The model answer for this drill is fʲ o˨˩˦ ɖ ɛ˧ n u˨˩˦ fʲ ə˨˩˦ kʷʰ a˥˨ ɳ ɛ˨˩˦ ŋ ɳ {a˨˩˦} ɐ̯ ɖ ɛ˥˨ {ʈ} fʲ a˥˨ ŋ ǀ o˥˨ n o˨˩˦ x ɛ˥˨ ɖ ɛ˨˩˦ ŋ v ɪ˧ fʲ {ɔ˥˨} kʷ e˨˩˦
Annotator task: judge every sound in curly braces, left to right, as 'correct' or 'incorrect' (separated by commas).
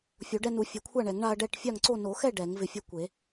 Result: incorrect, correct, incorrect